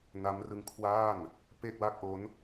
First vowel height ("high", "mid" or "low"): low